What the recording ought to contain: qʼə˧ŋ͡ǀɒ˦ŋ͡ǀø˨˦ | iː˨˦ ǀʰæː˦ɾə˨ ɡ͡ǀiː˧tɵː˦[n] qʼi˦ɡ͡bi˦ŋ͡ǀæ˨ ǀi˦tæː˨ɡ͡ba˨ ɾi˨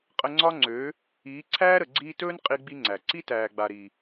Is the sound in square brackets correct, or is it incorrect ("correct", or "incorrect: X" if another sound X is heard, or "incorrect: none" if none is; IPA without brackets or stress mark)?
correct